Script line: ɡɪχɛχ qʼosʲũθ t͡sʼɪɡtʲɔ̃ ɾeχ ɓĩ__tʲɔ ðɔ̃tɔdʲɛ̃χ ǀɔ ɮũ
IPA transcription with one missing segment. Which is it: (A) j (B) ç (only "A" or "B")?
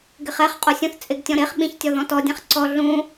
B